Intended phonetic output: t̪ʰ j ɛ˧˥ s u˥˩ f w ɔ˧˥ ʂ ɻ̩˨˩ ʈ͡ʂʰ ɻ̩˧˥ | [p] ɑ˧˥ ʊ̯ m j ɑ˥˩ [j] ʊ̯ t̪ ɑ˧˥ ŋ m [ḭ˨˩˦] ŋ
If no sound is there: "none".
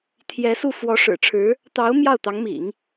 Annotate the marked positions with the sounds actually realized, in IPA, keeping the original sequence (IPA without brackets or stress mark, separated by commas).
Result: t̪, none, ḭ˨˩˦